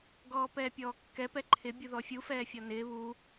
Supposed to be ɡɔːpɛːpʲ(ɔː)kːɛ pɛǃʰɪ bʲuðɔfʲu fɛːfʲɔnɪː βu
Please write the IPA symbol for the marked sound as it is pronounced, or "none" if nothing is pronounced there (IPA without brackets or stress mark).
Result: ɔː